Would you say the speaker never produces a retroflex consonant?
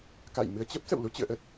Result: yes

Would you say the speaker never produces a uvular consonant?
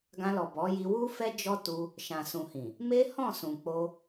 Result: yes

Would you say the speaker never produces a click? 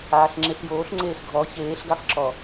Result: no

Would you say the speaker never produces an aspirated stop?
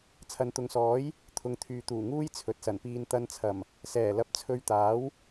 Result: no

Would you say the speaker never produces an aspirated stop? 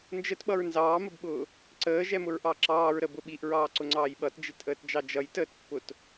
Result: yes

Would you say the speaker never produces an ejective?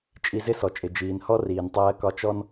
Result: no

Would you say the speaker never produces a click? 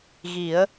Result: yes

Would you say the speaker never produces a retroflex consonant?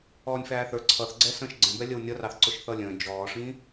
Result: no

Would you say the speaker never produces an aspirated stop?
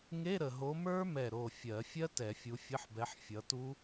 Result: yes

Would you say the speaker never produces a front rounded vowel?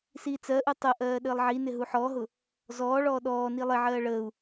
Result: yes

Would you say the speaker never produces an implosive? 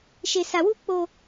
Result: yes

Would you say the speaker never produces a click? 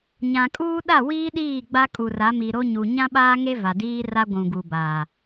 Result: yes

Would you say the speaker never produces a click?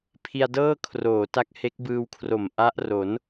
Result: yes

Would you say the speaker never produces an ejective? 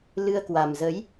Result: yes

